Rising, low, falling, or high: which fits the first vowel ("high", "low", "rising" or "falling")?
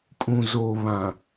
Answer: low